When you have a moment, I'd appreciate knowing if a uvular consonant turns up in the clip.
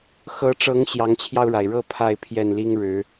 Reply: no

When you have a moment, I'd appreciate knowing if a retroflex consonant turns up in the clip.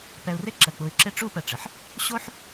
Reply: yes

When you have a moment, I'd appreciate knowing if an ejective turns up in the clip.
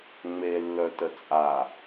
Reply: yes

